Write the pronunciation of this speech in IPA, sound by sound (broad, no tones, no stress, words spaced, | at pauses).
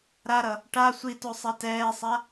ɾaɾʌ | ʈa sʷito sˤatɛːsˤa